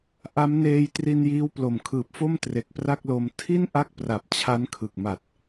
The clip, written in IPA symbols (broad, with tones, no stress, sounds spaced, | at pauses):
ʔ a˦˥ m n eː˧ j t r i˧ n j iː˦˥ w p l o˨˩ m kʰ ɯː˨˩ p̚ f o˥˩ m t r e˨˩ k̚ p r a˥˩ k̚ l o˧ m tʰ i˥˩ n ʔ a˥˩ k̚ p r a˨˩ p̚ t͡ɕʰ a˦˥ n kʰ ɯ˨˩ k̚ m a˨˩ t̚